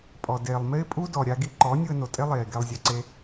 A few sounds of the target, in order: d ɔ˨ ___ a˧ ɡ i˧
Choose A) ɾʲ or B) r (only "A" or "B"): A